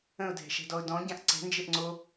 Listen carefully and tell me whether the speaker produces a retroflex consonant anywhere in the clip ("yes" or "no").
no